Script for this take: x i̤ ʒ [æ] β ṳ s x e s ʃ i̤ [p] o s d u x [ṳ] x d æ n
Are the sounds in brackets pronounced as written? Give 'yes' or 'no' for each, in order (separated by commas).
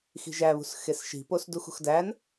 yes, yes, yes